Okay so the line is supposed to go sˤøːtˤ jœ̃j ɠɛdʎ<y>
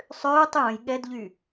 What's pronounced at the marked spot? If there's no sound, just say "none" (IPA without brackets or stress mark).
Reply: y